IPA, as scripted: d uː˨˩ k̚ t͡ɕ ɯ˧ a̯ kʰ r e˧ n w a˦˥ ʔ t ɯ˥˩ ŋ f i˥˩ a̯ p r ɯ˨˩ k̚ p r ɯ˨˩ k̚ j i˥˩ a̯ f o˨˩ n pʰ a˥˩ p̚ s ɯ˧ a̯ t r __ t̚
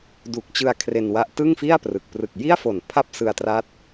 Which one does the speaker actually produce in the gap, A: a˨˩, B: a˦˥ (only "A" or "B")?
B